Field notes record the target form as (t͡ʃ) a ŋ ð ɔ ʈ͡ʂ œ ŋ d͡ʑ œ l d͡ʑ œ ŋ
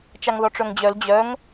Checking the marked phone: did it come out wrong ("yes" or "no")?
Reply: no